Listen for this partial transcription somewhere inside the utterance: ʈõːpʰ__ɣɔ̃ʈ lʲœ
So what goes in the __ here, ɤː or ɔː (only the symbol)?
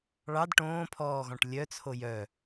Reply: ɔː